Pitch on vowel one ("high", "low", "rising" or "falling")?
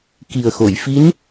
low